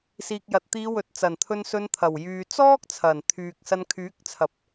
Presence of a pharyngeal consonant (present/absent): absent